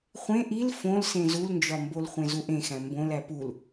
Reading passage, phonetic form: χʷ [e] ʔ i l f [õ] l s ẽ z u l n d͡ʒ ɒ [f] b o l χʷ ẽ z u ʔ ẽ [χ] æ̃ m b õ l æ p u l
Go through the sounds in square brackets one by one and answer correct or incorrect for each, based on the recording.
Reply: incorrect, correct, incorrect, incorrect

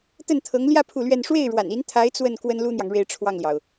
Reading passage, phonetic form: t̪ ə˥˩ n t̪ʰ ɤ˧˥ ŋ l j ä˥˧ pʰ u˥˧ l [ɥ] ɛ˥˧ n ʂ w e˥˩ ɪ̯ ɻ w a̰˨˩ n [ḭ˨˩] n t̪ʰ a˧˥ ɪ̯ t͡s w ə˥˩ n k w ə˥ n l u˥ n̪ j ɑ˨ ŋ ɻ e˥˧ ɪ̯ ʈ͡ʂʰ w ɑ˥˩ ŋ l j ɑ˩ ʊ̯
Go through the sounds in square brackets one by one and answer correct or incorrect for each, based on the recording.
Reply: correct, incorrect

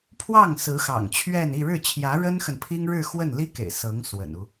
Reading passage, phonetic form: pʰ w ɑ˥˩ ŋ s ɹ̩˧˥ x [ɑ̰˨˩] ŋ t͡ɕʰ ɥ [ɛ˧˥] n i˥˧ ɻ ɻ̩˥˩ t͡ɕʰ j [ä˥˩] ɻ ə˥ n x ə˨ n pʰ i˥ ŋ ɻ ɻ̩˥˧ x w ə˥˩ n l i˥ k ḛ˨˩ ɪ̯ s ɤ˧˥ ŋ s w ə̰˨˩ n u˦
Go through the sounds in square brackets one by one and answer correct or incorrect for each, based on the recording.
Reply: correct, incorrect, incorrect

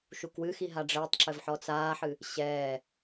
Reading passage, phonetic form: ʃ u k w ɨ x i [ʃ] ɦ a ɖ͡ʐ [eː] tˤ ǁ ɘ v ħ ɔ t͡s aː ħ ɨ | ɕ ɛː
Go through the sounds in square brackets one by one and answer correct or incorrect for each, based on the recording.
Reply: incorrect, incorrect

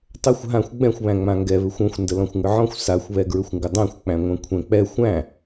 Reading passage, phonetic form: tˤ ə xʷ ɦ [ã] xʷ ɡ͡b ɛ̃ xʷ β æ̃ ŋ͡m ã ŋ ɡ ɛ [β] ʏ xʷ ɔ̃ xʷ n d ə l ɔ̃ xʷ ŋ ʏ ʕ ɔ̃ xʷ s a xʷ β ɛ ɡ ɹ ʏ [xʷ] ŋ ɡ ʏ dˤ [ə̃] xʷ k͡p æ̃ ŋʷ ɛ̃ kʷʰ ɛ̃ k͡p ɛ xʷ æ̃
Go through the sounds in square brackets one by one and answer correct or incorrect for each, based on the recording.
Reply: correct, correct, correct, incorrect

